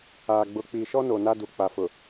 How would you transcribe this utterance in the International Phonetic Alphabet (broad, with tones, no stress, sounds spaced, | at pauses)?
aː˨ ɡ͡b ʊ˨ k͡p i˨ ʃ ɔ˦ n o˨ n a˦ d u˨ k͡p a˨ f ʊ˨